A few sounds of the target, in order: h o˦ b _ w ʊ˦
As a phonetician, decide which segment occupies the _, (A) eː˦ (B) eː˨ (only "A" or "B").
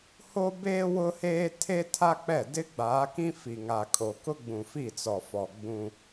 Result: A